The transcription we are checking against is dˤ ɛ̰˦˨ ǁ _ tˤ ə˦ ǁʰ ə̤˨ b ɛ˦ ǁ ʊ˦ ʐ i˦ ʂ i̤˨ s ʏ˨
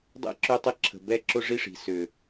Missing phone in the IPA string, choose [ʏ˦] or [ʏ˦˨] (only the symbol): ʏ˦˨